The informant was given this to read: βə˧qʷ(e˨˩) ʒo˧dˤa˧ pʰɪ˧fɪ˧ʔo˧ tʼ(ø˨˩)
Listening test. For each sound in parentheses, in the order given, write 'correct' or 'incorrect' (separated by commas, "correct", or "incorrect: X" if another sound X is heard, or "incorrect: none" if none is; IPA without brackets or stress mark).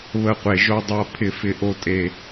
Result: correct, incorrect: e˨˩